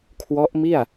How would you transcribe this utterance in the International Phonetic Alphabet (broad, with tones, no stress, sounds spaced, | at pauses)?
kʰ w ɔ˦˥ ʔ m i˥˩ a̯